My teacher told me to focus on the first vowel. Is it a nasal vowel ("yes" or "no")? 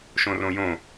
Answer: yes